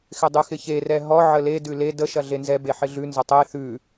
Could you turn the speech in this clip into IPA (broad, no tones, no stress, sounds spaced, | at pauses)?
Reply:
x ɪ dˤ ʉ x ɪ ç e r ɛ ɦ ɔ ʕ ə l e d ʉ l e d ə ʃ ɐ ɮ e n z ɛ b e ħ ɪ ɮ ʉ n z ə tˤ e θ ʉ